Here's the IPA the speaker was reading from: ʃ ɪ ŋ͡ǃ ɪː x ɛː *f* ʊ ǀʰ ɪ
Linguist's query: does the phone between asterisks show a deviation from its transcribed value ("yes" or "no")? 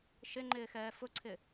no